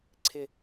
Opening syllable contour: falling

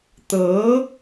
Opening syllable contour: rising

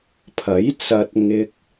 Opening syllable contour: rising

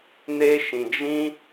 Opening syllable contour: high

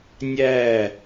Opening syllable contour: falling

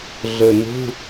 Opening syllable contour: low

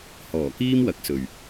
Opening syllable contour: low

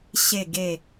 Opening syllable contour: low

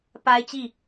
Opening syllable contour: high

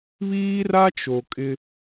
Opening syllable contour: high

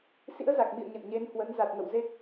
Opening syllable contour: rising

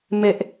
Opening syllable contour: low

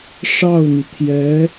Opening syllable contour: falling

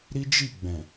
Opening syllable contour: high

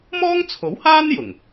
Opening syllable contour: high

